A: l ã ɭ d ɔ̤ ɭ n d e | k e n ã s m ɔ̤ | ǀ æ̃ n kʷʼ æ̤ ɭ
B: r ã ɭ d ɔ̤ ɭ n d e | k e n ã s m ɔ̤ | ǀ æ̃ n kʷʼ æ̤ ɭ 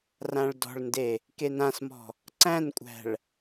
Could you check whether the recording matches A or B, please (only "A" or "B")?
B